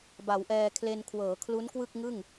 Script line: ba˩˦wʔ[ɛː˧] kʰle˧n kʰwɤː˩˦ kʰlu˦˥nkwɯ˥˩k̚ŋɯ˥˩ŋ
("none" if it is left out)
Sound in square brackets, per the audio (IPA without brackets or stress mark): ɛː˧